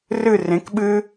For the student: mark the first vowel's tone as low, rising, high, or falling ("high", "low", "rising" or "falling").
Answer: falling